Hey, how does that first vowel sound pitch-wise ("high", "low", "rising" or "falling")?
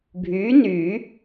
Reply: rising